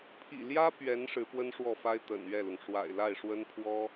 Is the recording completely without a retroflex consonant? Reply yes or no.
no